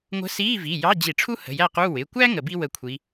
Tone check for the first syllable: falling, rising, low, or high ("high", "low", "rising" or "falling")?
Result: rising